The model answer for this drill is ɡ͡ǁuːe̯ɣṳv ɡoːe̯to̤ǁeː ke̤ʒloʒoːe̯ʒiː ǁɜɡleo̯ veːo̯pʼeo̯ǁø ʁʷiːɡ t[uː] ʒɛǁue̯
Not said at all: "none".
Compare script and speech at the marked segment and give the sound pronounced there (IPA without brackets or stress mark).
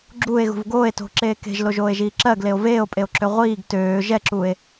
øː